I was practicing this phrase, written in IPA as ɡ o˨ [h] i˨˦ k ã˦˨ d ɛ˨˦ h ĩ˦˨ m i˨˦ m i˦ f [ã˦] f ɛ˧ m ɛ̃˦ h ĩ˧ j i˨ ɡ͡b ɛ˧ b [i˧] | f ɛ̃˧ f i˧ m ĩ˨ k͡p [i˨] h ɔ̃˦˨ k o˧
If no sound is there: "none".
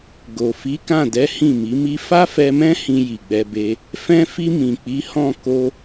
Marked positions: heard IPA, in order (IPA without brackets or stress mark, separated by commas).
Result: f, a˦, e˧, i˨˦